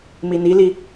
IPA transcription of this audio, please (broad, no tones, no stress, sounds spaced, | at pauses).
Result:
m i n i l i